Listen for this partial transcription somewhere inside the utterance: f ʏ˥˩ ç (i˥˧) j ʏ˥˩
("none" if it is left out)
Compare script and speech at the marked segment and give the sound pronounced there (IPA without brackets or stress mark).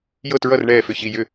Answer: i˥˧